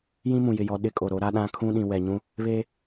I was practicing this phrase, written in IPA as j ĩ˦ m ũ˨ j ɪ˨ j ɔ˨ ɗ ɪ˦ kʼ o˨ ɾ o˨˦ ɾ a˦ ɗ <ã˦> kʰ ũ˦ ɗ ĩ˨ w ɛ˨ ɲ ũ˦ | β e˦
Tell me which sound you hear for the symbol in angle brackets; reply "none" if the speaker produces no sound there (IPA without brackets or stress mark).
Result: ã˦